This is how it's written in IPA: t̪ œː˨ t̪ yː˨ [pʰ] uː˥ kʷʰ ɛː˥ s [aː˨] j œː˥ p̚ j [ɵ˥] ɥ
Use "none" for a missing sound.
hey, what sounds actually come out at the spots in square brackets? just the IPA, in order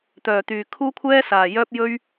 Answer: kʰ, aː˨, ɵ˥

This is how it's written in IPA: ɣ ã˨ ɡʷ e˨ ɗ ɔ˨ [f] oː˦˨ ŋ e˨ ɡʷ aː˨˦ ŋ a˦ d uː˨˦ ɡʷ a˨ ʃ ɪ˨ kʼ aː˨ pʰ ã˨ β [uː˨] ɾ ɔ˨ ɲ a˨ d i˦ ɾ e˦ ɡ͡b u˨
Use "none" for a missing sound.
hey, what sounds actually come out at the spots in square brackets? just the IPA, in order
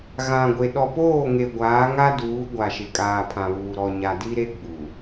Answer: p, uː˨

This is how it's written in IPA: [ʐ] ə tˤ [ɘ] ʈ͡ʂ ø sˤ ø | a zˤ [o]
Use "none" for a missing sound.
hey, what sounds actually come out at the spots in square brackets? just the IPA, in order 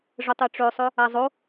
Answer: ʐ, e, o

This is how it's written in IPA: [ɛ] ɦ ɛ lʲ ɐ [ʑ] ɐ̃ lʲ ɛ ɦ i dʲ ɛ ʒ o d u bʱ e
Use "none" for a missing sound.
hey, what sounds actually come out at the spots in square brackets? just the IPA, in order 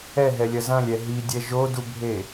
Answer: ɛ, z

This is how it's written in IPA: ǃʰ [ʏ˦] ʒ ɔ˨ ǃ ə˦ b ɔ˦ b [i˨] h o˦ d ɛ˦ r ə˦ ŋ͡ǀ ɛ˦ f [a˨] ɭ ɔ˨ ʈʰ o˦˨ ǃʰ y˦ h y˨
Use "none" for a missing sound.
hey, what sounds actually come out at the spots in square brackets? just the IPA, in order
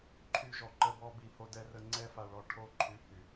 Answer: y˦, i˨, a˨

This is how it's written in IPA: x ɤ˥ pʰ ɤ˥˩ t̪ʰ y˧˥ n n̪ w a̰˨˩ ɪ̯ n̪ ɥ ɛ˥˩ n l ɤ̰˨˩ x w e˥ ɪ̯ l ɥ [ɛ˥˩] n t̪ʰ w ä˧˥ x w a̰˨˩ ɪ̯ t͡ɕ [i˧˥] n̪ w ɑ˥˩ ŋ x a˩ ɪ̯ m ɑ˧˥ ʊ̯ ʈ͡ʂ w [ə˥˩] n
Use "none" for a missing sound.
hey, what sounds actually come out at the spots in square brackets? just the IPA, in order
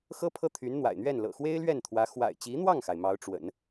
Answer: ɛ˥˩, i˧˥, ə̰˨˩˦

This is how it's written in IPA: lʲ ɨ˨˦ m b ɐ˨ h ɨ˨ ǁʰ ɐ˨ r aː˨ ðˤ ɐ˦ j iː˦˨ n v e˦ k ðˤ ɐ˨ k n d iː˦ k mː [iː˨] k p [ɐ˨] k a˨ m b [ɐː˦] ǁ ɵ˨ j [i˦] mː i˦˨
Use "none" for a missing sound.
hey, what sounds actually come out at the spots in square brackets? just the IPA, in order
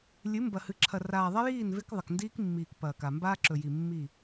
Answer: iː˨, ɐː˨, aː˦, i˨

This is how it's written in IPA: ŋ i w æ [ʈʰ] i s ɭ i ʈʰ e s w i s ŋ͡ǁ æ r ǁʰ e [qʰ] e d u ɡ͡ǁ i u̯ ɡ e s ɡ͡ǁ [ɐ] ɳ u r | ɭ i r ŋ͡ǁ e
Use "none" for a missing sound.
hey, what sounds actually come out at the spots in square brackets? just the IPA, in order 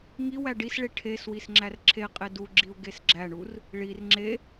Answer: ɖ, qʼ, æ

